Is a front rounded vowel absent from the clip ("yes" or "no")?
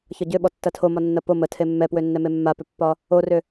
no